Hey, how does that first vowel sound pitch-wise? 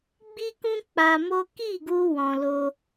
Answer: high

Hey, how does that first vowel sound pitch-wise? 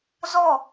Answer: falling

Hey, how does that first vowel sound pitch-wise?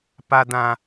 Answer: high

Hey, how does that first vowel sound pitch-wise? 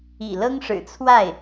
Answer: low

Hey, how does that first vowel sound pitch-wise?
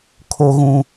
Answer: low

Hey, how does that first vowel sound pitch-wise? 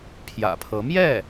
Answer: low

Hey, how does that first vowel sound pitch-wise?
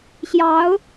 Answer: rising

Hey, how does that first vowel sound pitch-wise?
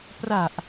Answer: low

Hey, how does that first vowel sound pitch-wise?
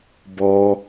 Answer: low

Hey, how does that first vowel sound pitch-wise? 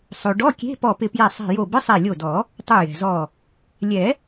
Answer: low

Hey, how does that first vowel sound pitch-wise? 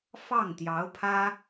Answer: falling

